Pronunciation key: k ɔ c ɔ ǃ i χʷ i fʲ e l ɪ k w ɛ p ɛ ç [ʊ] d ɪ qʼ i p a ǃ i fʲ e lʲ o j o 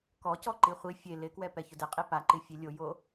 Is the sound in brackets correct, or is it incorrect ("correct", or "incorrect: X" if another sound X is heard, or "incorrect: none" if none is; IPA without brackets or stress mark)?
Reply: correct